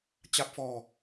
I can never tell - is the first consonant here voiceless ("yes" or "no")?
yes